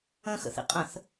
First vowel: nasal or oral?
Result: nasal